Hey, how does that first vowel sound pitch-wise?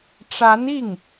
rising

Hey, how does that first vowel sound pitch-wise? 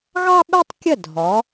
high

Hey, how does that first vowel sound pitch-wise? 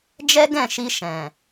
high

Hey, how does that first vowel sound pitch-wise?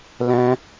high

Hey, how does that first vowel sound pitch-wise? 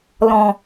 low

